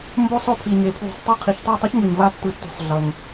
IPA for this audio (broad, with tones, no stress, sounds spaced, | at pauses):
m b o˥ sˤ o˥ pʰ i˧ ɲ e˧ pʰ w ṳ˧˩ sˤ tˤ a˥˧ qʰ i˧ ç tˤ o˥˧ tˤ ɛ˥ ç ŋ ɯ˧ ɲ v a˥ tː ɯ˧ tː ṳ˧ sˤ ɮ ʌ˧ ŋ